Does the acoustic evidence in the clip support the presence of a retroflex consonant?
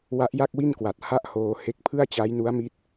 no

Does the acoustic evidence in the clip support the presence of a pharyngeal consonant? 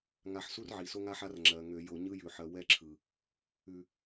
yes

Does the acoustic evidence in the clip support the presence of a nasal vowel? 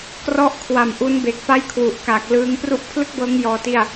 no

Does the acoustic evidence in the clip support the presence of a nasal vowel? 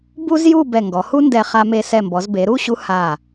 no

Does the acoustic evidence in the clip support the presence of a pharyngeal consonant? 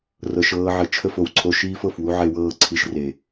yes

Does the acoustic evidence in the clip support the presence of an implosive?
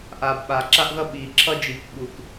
yes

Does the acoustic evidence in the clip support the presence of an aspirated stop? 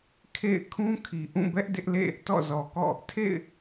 yes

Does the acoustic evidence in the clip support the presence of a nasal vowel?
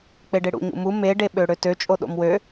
no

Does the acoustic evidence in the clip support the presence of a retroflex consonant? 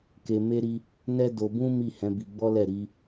no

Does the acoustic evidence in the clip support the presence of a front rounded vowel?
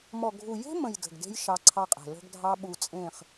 no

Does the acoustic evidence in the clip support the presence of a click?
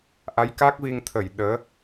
no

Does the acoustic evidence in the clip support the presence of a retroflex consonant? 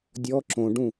yes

